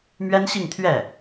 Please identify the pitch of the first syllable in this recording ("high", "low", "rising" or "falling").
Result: high